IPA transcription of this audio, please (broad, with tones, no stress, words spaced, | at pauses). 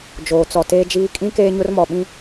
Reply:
d͡ʒoː˨t͡sɔ˨ teː˦d͡ʒiː˦ kʼĩ˦ keː˦ɲʊ˦rmɔ˨ ɓĩ˦